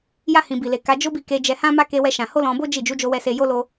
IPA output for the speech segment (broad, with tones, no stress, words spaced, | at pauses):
ja˧hĩ˨bi˨le˨ ka˨˦d͡ʒo˦bi˦˨ ke˨˦d͡ʒɛ˧hã˦ma˦ ke˦wɛ˦ʃã˧ ho˦lɔ̃˧bo˦ d͡ʒi˦˨ d͡ʒu˨˦d͡ʒo˧wɛ˧ se˧jo˦lo˦